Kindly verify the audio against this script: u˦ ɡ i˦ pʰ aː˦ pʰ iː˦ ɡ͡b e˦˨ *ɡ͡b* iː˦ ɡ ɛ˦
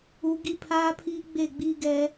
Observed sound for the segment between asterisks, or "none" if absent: ɡ͡b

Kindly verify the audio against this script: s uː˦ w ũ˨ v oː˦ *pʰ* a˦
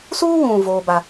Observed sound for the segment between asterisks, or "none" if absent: b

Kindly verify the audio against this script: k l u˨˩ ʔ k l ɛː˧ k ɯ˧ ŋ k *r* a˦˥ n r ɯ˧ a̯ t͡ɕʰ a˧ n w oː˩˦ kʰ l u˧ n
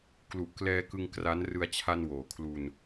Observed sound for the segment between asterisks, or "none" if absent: r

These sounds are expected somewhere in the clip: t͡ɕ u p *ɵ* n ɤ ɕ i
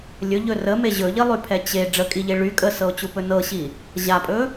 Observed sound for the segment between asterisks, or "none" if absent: ɵ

